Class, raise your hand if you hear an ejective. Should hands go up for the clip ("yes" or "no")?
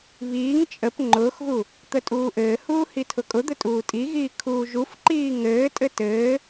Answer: yes